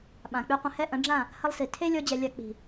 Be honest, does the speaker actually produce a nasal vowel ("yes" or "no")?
yes